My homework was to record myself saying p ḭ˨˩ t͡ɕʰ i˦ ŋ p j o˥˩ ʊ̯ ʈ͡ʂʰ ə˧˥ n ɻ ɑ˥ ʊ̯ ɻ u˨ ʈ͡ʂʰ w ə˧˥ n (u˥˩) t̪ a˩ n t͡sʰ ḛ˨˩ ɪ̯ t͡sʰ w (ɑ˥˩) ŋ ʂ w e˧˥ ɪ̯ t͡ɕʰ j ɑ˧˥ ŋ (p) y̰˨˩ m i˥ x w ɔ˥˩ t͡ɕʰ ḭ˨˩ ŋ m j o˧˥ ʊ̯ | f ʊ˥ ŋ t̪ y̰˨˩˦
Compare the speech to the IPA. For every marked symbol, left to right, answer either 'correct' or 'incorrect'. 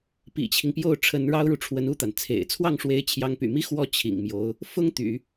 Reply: correct, correct, correct

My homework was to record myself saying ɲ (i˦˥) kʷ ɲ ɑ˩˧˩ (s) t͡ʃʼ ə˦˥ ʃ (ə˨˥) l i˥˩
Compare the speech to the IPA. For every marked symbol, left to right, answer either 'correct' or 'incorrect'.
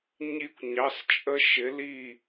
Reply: correct, correct, incorrect: ɪ˨˥

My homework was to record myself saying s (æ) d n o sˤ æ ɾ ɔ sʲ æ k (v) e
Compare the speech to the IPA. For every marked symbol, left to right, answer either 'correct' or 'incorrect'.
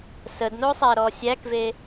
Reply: incorrect: ə, correct

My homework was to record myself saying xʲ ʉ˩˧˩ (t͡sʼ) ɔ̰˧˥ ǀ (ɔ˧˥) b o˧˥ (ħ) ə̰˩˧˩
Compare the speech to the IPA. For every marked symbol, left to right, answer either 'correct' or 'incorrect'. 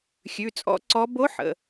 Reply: correct, correct, correct

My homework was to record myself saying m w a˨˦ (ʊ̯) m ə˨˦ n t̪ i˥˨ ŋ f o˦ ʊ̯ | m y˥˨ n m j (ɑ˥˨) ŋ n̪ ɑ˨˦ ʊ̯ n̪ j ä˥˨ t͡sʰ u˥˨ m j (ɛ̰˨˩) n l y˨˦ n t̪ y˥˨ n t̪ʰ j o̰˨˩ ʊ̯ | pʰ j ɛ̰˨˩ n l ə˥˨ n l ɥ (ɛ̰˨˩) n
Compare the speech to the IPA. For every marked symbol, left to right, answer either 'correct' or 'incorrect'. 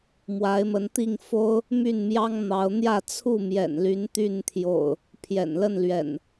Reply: incorrect: ɪ̯, incorrect: ɑ˦, correct, correct

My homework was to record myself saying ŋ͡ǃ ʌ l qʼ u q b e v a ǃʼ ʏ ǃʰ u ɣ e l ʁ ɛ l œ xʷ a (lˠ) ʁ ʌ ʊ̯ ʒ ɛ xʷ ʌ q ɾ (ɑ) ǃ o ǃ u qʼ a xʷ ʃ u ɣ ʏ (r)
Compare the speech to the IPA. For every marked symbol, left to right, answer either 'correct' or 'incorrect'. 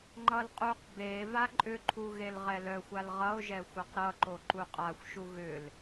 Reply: incorrect: l, incorrect: ʌ, incorrect: l

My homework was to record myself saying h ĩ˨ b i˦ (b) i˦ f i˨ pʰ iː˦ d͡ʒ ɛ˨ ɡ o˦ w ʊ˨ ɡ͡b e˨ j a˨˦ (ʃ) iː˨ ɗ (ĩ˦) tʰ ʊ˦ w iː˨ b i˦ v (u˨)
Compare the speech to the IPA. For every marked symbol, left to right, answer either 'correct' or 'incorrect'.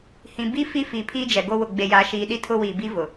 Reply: incorrect: f, correct, incorrect: i˦, incorrect: ʊ˨

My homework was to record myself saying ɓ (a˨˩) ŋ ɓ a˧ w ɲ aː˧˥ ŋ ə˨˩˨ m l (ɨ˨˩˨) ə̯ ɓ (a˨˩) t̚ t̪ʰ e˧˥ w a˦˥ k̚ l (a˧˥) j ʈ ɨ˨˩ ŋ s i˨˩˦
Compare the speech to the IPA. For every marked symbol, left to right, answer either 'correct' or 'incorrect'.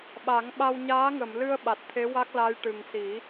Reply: incorrect: a˨˩˦, incorrect: ɨ˧, correct, correct

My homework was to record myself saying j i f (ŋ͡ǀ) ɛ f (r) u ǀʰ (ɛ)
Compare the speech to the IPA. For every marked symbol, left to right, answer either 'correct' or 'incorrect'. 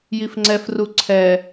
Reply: correct, correct, correct

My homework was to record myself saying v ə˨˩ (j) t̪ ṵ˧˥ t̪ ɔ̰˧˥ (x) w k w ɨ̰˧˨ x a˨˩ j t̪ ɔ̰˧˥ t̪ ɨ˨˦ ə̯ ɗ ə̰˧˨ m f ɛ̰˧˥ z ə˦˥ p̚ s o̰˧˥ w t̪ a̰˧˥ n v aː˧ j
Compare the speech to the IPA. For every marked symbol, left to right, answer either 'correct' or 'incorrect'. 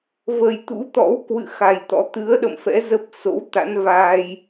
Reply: correct, incorrect: none

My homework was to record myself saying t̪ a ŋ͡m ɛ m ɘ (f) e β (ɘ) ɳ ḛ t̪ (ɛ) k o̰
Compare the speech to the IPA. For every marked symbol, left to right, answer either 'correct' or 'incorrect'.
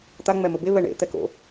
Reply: incorrect: b, incorrect: ɛ, correct

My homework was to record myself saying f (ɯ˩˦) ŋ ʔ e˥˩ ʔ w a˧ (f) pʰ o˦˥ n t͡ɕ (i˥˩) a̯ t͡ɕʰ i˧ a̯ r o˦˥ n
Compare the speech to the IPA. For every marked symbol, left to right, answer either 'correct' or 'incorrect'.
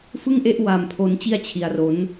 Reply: incorrect: ɯ˥˩, incorrect: m, correct

